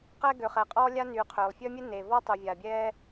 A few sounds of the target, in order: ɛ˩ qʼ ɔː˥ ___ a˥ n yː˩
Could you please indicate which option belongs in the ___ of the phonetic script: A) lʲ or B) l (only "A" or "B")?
A